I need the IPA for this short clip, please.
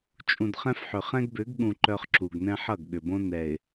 t͡ʃʼ ũ˨ d χ ɛ̃˦ f ħ ʏ˨ χ ɛ̃˦ ɡ b ʏ˨˦ ɡ ɠ ũ˨ ǃ œ˦ χ ǁ u˨ ɡ n ɛ̃˦ ħ ʌ˦˨ ɡ ɠ ʏ˨ b õ˦ n ɛ˨ ɪ̯

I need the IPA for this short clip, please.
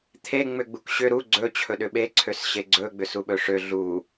t̪ʰ e ŋ͡m ʏ ɡ͡b u k ɕ ʏ ɾ u ɡ͡ǀ ɵ t͡ɕʰ ɵ ɗ ʏ ɓ e ǀʰ ø s ɕ e ɡ͡ǀ ɵ ɡ͡b ʏ s u ɓ ɵ ʂ ø ɮ u

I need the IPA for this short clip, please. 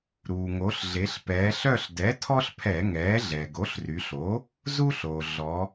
ɾ uː˩ ŋ o˩˧ ɬ ɮ e˩˧ ɬ p ɛː˩˧ ɬ œ˦˨ ɬ d ɛ˩˥ tʰ ɔ˦ ɬ pʰ ɛ˧˩˧ ŋ ɛː˩˥ ɮ ɛ˩ ɡ o˩˥ ɬ r y˩˧ ɬ o˩˥ | z u˦ ɬ oː˩ ɮ ɔ˩˧

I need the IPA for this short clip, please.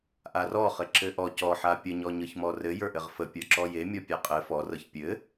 ʔ a r ɔ χ ɘ ǁ ɘ ʔ ɔ c ɔ ħ a pʲ ə ɲ ɔ ɲ ɤ ç m ɔ r ɘ j ə˞ ʔ ɘ ʁ f ə pʲ ə˞ ǁ ɔ j e mʲ ɔ pʲ a qʼ ɘ f ɔ r ɤ ç pʲ ɘ

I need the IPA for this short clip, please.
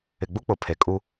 ɪ˨ ɡ͡b u˦ k͡p ʊ˨ pʰ e˨ kʼ u˦

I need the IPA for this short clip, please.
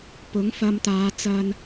p ʊ˨˥ ŋ f ɐ˧ m t̪ aː˨˧ t͡s ɐ˧ n

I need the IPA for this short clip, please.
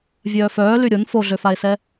vʲ œː f œː l y ɾʲ o n f o ɮ ø f a e̯ s ɛ

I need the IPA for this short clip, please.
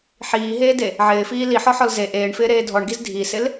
ħ iː ɦ eː d e | ʕ ɪː f iː l i ħ ɔ ħ ɔ l z e ʔ eː ɳ f ɪː ɾ eː dʱ ɔ ɳ ɡ i z dʱ i s ɪ l

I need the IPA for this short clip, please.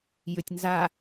j ʏ tʲ n z a

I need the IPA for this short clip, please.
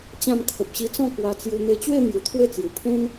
t͡ɕ ã˥˧ m kʰ ə˨ p̚ ɕ i˧ t͡s ɔ̃˥˧ k w a˧ t͡s j u˧ n̪ e˧ t͡ɕ w e˥˧ n̪ j u˨˩ t̪ʰ w e˥˧ t͡s j u˨˩ pʰ ẽ˦ n

